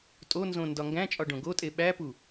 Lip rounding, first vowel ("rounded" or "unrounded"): rounded